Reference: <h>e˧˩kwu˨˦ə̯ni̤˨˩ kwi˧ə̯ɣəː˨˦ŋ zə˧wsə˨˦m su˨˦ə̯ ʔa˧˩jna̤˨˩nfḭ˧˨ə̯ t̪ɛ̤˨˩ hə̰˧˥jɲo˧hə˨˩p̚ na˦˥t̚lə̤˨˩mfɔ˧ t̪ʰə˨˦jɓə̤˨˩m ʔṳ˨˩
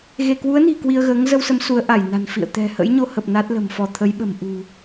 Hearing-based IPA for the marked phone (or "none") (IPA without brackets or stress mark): ɣ